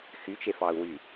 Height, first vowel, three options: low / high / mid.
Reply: high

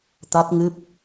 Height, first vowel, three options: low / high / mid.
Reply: low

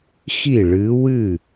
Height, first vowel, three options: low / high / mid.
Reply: high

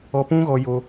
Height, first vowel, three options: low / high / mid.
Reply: mid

